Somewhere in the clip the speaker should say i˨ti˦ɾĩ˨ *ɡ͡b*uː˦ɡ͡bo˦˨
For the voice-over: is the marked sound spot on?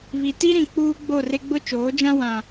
no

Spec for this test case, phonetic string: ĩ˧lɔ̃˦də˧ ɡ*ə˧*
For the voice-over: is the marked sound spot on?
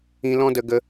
yes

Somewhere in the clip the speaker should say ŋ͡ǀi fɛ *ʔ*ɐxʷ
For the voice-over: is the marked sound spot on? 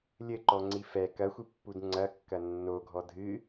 no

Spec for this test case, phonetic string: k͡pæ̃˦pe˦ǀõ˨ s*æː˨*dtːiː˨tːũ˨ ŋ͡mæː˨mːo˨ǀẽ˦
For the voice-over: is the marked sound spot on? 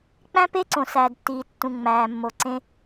yes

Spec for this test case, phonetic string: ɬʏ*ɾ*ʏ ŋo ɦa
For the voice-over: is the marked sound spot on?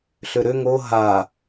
yes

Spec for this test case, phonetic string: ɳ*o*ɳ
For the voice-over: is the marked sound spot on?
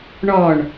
no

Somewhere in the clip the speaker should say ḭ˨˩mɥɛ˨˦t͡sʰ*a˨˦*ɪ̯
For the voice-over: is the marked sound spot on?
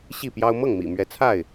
no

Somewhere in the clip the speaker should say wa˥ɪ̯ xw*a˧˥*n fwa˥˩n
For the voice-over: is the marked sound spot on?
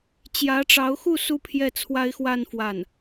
no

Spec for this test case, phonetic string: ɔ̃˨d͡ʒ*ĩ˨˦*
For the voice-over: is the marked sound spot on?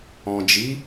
no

